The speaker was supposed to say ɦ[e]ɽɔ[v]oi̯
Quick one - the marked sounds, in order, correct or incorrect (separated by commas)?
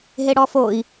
correct, incorrect